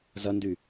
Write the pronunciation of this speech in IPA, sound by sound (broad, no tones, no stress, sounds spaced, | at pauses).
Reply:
z ɐ n d y